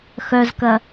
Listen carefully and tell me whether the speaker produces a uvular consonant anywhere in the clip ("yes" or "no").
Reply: no